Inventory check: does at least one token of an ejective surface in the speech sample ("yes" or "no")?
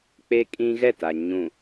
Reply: yes